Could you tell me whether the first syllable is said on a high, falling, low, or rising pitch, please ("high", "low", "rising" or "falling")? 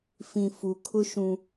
low